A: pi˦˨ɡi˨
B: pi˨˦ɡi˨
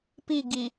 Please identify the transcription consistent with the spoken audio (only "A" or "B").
A